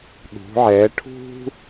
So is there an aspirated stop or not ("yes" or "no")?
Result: yes